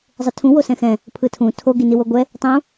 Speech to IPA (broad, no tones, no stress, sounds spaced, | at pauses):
zˤ ɯ tʰ ũ w o s ɛ̃ x ɛ̃ | pʰ ɯ tʰ ũ tʰ o ɡ i n i w o ɡʷ ɛ | tˤ ũ